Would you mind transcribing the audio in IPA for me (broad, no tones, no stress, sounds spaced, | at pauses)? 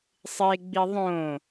sˤ e ɡ͡b i ðˤ õ